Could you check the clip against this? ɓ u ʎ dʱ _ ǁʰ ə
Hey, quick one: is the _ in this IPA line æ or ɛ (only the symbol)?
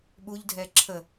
ɛ